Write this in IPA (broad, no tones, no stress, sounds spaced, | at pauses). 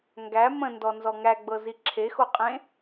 ŋ ɡ æ m ə̃ n d ɔ n z ɔ ŋ æ ɡ͡b ɤ z i ǁʰ e x o qʼ ẽ